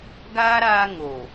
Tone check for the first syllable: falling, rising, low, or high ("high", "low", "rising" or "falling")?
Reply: high